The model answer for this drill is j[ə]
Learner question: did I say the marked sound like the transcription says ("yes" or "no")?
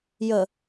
yes